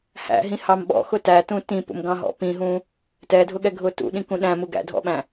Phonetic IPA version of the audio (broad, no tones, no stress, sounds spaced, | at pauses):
h æ̰ ɦ ĩ h ɑ m ɓ ɔ̰ x ʊ t æ t ũ t ĩ p ṵ m ɡ ɑ̃ ɦ ɔ̰ p ĩ ɦ ũ | t ɛ dʱ ʊ ɠ ɛ ɡʱ ʊ t ṵ ɗ ĩ k ũ ɗ æ̃ m u ɡ æ̰ dʱ ɔ̰ ɓ æ̃